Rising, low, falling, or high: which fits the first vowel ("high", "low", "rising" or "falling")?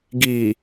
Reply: low